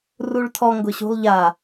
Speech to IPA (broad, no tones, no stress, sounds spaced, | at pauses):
r u ɭ tʰ ɔ ŋ ɡ ʊ ɕ ṳ lˠ ʎ a